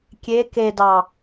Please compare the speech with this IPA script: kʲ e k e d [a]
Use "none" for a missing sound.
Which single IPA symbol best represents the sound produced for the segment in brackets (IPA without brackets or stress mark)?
ɑ